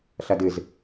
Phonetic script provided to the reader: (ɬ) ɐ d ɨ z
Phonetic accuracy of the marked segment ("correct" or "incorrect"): correct